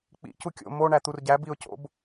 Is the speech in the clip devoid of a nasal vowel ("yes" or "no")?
yes